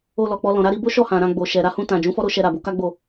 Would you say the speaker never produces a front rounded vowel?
yes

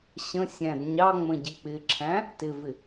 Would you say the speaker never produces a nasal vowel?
no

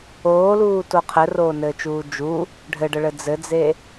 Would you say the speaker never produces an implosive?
yes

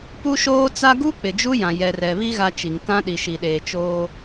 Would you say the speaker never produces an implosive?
no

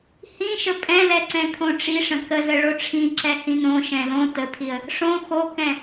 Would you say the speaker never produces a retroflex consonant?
no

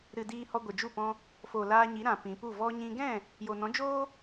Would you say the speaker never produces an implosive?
yes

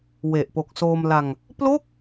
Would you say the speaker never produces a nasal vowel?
yes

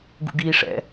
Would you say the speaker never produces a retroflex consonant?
no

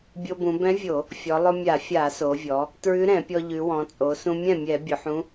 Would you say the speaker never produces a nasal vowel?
no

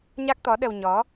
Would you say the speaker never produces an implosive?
no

